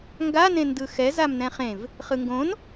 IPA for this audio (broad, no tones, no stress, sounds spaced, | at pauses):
ŋ ɡ a n ẽ n d ɯ x ɛ z a m n ɛ̃ χ ẽ v | χ ɯ ŋ ɡ õ n